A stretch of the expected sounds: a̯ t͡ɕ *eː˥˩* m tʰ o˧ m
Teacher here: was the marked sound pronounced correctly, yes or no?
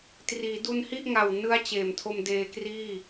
no